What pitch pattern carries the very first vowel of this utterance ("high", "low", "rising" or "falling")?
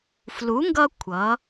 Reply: rising